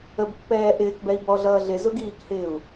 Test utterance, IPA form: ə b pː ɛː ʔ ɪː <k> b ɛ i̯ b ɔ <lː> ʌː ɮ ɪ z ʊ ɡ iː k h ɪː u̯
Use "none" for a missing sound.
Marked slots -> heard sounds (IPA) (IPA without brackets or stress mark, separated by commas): k, ɮ